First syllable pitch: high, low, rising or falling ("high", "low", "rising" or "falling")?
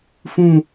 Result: falling